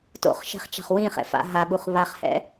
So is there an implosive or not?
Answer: yes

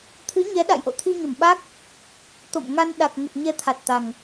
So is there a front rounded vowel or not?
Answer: no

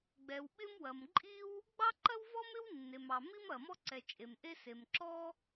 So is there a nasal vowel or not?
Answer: no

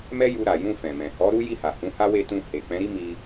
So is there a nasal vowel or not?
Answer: yes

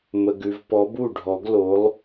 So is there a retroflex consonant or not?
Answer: yes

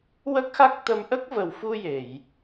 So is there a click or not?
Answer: no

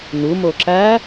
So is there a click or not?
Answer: yes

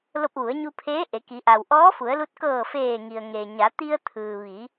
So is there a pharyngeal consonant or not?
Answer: no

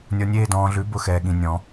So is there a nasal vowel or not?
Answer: yes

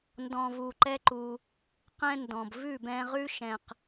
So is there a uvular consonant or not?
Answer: yes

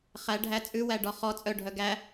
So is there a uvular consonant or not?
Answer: yes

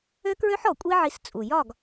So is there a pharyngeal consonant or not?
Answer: yes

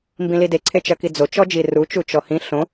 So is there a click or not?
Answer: yes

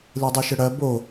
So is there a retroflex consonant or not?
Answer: yes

